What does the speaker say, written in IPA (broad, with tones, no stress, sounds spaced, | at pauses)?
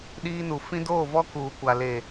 ɗ iː˦ n u˨ f ĩ˦ d oː˦˨ v ɔ˦ k uː˨ kʷ a˨ l e˨